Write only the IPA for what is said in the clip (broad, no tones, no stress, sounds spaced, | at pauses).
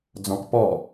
d͡z ɔ̃ k p ɔ